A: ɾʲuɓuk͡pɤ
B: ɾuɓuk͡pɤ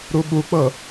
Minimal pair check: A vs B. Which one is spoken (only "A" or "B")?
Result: B